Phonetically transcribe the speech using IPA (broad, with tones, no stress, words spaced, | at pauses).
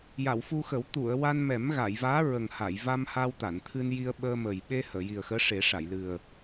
ja˨˩˨wfu˧xə˨˩˦w t̪u˨˩˨ə̯ wa˧nmɛ˨˩˦m ɣa˨˩˨jvaː˧˥ ɹə˨˩ŋ ha˨˩˨jva˧m ha˧wt̪a˨˩˨n t̪ʰɨ˧nji˧ə̯ɓəː˧ mə˨˩j ɓe˧ həː˨˩˨ji˨˩ə̯xəː˧˥ ʂe˨˩˦ʂa˨˩˨jlɨ˨˩ə̯